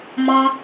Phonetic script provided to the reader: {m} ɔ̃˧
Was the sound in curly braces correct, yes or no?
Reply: yes